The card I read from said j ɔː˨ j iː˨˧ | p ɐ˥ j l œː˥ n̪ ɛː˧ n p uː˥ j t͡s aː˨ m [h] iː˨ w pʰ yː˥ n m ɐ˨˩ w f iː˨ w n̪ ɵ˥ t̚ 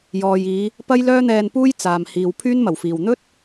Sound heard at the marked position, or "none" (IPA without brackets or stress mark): h